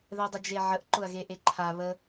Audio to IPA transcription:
ð ɛ dˤ ə d͡ʒ e ʕ ə ʔ ǃ ʊ ɐ̯ ɣ e ʔ e ǃʰ a β ə

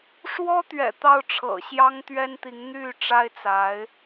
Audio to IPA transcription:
ʂ w ɔ˥ t̪ ɥ ɛ̰˨˩ t̪ ɑ˥˩ ʊ̯ ʈ͡ʂʰ ɤ̰˨˩ ɕ j ɑ˥ ŋ t̪ ɥ ɛ˥ n t̪ i˧˥ ŋ n̪ y˥˩ ʈ͡ʂ a˥ ɪ̯ t͡s a˧˥ ɪ̯

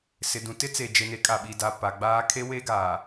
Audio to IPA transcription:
s ɪ˨ d ũ˨ t ɪ˦ t͡s e˨ d͡ʒ e˨ n e˨˦ kʼ a˨ ɓ i˨ d a˨ p a˨ ɡ͡b aː˦ kʰ e˦ w e˦ ɡ aː˨

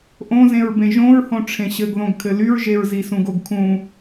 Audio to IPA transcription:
ʔ õ z ẽ ɹ b ẽ ʒ õ ɹ h õ ʈ͡ʂʰ ẽ ɕ ɘ ɡ ð õ ɡ kʰ ɘ l y ɹ ʒ e ɹ z i s ũ ɡ o ɡ kʰ ũ

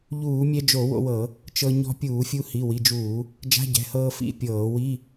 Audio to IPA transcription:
ʎ uː˧˩˧ mʲ ɛ˧ d͡ʒ o˧˩˧ w o̰˧ w ɤ˧˩˧ | t͡ʃ ɤ˧ ɲ ɔ̤˧ pʲ uː˧˩˧ fʲ u˧ h i˩˧˩ w i˩˧˩ d͡ʒ uː˧˩˧ | d͡ʒ a̤˧˥˧ ɟ ɛ̤˩˧˩ h ɤː˧ f ḭ˧˥˧ pʲ ɤː˧˩˧ w i˧˥˧

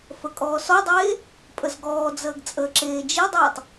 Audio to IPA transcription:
f ə kʼ ɔː s ɔ dˤ eː | pʼ ə z ɡ ɔː d͡z əː ɡ t͡sʼ əː ǁ eː d͡ʒ i dˤ uː tˤ

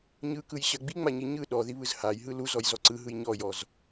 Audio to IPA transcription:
ɲ ɯ k ɯ j ɕ ɜ ɡ͡b i ŋ͡m a ɲ i ɲ ɯ ɗ ɔ ð i β ɯ z h a j ɦ ɯ l u z ɔ j z ɔ ǀ ɯ ɦ ɯ j ɲ ɔ j ɔ z

